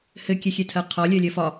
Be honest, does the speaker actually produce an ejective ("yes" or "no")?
no